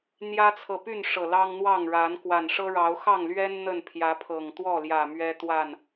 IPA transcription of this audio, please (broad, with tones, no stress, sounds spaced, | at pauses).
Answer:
n̪ j ä˦ t͡sʰ ɤ˨ p y˥˨ n ʂ ɤ˨˩ l ɑ˦ ŋ n̪ w ɑ˥˨ ŋ ɻ a˨˦ n k w a˨˩ n ʂ ɤ˦ ɻ ɑ˨˦ ʊ̯ x ɑ˥˨ ŋ l ɥ ɛ˦ n n̪ ə˥˨ n pʰ j ä˨˦ pʰ ɤ˨˩ ŋ t̪ w ɔ˥˨ l j ä˨˩ m ɥ ɛ˦ t̪ w a˥˨ n